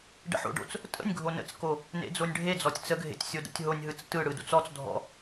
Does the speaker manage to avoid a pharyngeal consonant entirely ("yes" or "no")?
no